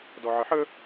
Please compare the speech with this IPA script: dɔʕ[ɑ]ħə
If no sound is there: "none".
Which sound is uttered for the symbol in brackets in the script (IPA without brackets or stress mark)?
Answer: ə